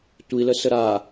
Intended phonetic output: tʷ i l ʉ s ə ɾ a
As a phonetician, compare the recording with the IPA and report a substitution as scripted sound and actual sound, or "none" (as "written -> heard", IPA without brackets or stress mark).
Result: ʉ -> ə